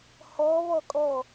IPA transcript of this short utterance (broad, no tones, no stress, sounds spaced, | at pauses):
h ɔ β ɔ kʼ ɔ